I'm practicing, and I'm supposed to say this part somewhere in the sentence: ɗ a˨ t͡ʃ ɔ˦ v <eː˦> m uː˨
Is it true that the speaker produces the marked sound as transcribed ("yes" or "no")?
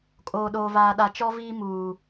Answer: no